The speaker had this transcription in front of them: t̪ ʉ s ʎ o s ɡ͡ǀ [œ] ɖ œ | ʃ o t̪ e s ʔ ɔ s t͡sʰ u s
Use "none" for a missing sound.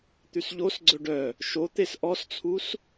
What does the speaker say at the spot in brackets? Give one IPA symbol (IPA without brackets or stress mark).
ɵ